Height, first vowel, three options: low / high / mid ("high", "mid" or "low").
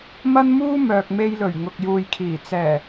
low